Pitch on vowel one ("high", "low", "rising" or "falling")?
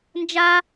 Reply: high